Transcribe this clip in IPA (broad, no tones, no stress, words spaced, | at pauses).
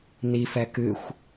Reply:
nifɛ kɨxʷ